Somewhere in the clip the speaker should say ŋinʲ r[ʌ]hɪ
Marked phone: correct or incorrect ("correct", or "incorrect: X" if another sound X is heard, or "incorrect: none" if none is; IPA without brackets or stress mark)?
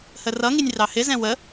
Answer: incorrect: ɑ